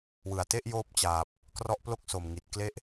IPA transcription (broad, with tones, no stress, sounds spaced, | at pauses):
w ɯ˨˩ a̯ t e˥˩ ʔ j oː˥˩ p̚ t͡ɕ aː˨˩ p̚ | k r ɔ˦˥ ʔ p l o˥˩ k̚ s o˨˩ m ŋ i˨˩ t̚ k l e˦˥ ʔ